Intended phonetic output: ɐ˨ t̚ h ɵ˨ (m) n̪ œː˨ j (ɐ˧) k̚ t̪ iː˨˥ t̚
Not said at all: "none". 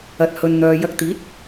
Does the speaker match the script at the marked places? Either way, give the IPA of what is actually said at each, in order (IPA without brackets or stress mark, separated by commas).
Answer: n, ɐ˧